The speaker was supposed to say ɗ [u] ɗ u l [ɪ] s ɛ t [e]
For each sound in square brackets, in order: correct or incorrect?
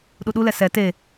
correct, incorrect: ɛ, correct

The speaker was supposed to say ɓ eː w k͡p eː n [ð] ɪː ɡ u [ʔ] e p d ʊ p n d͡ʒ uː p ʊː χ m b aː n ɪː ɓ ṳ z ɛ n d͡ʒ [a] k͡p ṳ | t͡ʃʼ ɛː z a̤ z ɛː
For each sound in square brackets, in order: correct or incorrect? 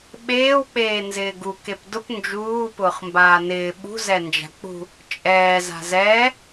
incorrect: z, incorrect: k, incorrect: a̤

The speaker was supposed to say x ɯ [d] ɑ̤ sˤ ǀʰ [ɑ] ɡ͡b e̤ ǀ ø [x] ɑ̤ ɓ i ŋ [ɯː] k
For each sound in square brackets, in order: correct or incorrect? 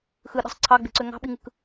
incorrect: ɗ, correct, incorrect: ŋ, incorrect: ɯ

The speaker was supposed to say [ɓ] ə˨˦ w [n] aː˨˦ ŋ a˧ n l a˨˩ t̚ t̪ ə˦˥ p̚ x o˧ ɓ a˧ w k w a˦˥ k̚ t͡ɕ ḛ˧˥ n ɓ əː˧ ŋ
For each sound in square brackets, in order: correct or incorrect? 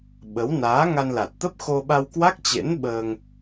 correct, correct

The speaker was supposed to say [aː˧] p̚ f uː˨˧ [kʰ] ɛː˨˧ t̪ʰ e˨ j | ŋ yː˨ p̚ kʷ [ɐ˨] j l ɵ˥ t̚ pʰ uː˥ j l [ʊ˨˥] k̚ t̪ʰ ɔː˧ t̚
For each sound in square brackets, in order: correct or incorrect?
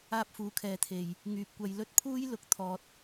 incorrect: aː˥, correct, incorrect: ɐ˧, correct

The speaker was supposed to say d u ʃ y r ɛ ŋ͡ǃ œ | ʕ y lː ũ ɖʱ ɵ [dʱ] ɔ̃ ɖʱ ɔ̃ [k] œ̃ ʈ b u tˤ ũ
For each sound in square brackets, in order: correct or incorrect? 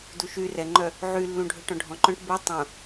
incorrect: ʈ, incorrect: ǃ

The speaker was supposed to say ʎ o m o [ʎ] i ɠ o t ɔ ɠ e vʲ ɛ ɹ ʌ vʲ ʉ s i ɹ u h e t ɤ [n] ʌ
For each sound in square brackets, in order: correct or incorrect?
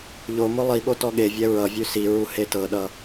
incorrect: lˠ, incorrect: ɗ

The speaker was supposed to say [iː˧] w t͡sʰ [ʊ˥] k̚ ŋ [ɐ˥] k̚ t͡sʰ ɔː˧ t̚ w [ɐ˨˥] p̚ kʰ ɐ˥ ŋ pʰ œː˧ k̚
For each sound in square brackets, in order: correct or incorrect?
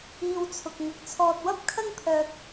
correct, incorrect: ʊ˨, incorrect: ɐ˧, incorrect: ɐ˥

